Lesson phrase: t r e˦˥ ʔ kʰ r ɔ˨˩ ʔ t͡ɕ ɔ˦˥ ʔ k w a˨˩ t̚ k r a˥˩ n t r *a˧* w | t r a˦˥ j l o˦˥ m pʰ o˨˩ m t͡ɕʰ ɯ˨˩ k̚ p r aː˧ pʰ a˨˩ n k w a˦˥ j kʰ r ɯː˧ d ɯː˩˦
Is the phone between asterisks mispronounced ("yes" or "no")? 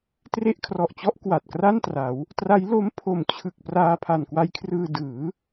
yes